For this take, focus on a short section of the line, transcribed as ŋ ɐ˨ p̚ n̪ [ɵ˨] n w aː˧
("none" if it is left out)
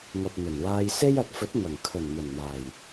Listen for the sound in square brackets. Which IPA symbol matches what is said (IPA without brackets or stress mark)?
ɵ˨˩